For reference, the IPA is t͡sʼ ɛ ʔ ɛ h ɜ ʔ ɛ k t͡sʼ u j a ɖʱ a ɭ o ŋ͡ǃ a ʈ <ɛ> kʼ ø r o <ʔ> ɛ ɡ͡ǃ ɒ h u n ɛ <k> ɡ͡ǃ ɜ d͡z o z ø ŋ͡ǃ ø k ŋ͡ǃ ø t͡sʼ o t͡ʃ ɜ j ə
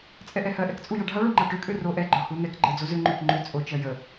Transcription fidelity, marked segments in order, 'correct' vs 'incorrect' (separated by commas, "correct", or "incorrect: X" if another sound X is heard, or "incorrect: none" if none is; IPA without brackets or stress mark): incorrect: ø, correct, correct